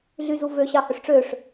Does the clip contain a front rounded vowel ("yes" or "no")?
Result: yes